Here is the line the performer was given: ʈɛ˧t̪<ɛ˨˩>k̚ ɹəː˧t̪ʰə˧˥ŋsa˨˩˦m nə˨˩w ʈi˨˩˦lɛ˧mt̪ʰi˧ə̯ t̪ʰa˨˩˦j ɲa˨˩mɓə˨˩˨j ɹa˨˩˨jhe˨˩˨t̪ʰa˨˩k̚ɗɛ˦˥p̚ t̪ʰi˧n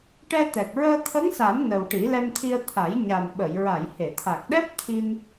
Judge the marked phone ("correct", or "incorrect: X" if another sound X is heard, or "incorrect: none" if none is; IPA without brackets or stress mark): correct